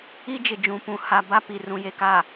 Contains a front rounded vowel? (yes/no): no